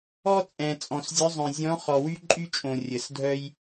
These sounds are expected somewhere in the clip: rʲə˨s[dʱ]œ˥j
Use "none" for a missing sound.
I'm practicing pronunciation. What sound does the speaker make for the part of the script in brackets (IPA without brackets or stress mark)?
dʱ